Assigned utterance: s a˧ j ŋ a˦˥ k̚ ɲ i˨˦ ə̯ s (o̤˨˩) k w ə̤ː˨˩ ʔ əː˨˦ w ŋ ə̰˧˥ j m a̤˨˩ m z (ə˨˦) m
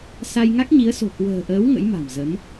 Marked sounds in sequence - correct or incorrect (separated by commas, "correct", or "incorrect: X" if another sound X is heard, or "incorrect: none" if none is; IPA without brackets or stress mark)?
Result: correct, correct